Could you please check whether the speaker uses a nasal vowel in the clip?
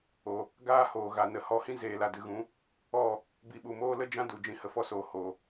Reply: yes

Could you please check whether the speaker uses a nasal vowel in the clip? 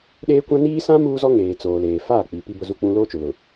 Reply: yes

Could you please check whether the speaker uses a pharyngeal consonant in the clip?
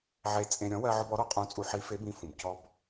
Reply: yes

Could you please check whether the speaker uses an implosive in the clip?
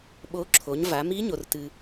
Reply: yes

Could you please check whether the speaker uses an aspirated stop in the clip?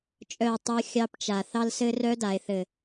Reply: no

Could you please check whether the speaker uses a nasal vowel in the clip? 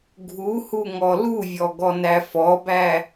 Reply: no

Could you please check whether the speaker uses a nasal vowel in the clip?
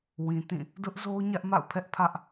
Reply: yes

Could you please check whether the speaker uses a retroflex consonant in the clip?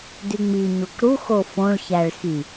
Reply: yes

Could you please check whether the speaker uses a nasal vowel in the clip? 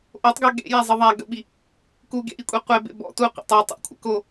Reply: no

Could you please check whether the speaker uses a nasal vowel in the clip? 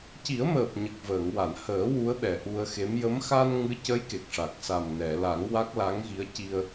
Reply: no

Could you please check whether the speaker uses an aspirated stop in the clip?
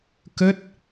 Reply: no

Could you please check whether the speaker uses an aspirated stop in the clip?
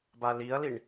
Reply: no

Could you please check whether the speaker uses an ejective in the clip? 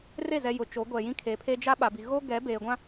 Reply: no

